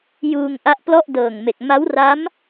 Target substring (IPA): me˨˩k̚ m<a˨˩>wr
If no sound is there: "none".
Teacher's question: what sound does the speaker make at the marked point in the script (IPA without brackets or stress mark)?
a˦˥